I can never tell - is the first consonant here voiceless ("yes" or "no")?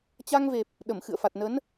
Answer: yes